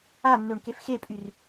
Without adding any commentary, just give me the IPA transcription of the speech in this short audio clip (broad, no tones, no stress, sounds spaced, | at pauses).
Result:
a nː ø ɳ k e f x e pʼ y r